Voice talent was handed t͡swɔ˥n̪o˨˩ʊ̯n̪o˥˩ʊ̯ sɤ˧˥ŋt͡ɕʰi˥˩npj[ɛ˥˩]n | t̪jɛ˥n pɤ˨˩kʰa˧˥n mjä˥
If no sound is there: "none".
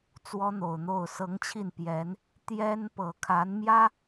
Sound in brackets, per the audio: ɛ˧˥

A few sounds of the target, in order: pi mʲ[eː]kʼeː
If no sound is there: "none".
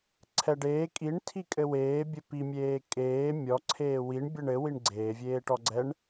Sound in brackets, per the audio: eː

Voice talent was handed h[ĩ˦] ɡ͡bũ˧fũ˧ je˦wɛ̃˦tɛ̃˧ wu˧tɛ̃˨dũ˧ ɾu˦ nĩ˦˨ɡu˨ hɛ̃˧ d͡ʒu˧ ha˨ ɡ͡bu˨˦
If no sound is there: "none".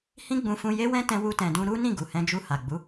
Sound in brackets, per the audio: ĩ˦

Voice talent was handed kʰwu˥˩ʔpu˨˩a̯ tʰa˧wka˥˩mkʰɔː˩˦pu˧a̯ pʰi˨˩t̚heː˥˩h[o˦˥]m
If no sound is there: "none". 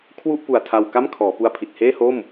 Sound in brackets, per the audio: o˥˩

